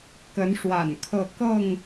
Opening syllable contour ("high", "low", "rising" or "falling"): rising